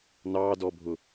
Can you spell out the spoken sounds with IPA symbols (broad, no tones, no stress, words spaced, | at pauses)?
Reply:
nɑdɔbʱʊ